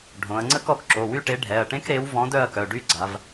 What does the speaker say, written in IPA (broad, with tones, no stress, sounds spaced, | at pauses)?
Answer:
ɖʱ õ˩˧ ɐ̯ ŋ͡ǀ ə˥ k ɔ˩˧ k ǁ o˩˧˩ w y˥˧ ʈ e˨˥ ɖʱ ɛ˩˧˩ ɐ̯ ʈ ẽ˥ k ɾ e˨˥ w v ɔ̃˨˥ d œ˥˧ ɐ̯ k œ˩˧˩ ɖ y˥˧ ɡ͡ǀ a˩˧ v